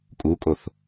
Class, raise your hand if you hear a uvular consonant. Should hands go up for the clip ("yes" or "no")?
no